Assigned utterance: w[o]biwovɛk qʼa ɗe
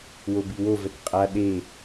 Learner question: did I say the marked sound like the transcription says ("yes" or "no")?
yes